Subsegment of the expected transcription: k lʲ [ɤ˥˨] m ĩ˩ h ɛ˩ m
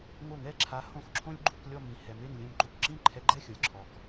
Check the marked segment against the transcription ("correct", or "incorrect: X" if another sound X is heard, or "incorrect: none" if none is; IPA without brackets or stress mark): incorrect: ɔ˥˨